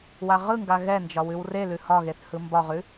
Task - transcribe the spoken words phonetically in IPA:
w a ʁ ɯ ŋ ɡ a ɣ ɛ n d͡ʒ ɒ w ʉ w r e l ʉ h ɒ ɣ e θ h ɯ m b ɒ ʁ ʉ

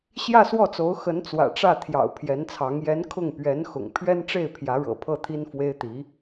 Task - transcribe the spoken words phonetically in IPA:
ɕ j ä˥˧ s w ɔ˥˩ t͡s o˧˥ ʊ̯ x ə˧˥ n t͡s w ä̰˨˩ ʈ͡ʂ ä˥˩ t̪ʰ j ɑ̰˨˩ ʊ̯ pʰ j ɛ˧˥ n t͡sʰ ɑ˧˥ ŋ j ɛ˧˥ n kʰ ʊ˥˩ ŋ p ɥ ɛ˧˥ n x ʊ̰˨˩ ŋ pʰ ɥ ɛ˥ n ʈ͡ʂ e˥˩ ɪ̯ pʰ j ä˧˥ ɻ ɤ̰˨˩ pʰ ɤ˥˩ t̪ʰ i˥ n f w e˥ ɪ̯ t̪ i˧˥

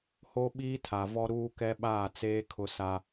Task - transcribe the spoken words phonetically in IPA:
h o˦ ɓ iː˦ tʰ a˨ v ɔ˦ ɾ uː˦ k ɛ˦ ɓ aː˦˨ t͡s eː˦ kʰ ʊ˦ s a˦

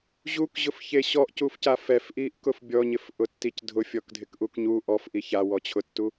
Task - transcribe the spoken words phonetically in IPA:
ʑ u k ʑ ʊ f ç e ɕ ɔ ʔ c u f c a f ɛ f ʔ i ʔ k ʊ f bʲ ɔ ɲ ɪ f ʔ ʊ tː i c dʱ ʊ fʲ ɔ k dʱ ɪ k ʔ u k ɲ u ʔ ɔ f ʔ i ç a w ɔ t͡ɕʰ ʊ tː u

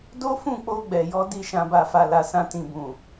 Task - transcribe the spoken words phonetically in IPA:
d o˦ f ũ˦˨ k͡p o˧ ɡ͡b ɛ˨ j ɔ˨˦ d i˧ ʃ ã˨ b a˨ f a˨ l a˨ s ã˧ t ĩ˨ b ũ˨

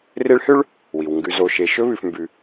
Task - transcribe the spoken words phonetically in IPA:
r e˦ ɭ h ø˥ ɭ | w i˩ w ŋ ɡ ʉ˨ z o˨ ʃ e˨ ʃ ɵ˥ β ʉ˨ f m b ʉ˨

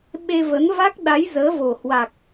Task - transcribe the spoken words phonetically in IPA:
ɓ e˧ v ə˨˦ n v a˦˥ k̚ ɗ a˨˦ j z əː˨˦ v o˨˩ h w a˨˩ k̚

